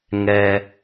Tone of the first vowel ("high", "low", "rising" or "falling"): low